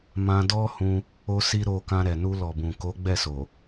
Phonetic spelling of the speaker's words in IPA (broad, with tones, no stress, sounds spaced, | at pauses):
m ã˧ d ɔ˦ h ũ˧ | o˧ s i˧ ɾ o˧ k ã˧ ɾ ɛ˨ n u˧ l ɔ˨ b ũ˨ k o˨˦ ɡ͡b ɛ˦˨ s o˨